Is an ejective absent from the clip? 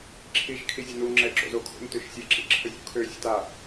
yes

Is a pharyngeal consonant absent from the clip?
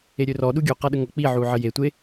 no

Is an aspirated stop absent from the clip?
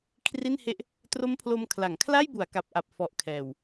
no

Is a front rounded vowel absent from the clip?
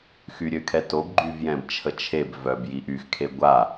no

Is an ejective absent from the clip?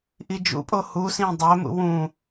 no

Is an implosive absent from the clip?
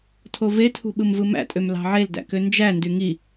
no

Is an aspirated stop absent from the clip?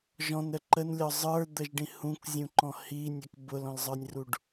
yes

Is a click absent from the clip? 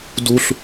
yes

